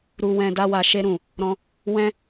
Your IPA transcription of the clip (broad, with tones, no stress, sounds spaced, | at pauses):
ɾ u˧ w ɛ̃˧ d a˧ w a˨ ʃ e˧ ɾ ũ˨ | ɾ ɔ̃˧ | w ɛ̃˦